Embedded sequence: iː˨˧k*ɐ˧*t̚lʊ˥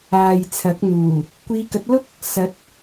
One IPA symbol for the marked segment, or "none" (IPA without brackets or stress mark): ɐ˨˥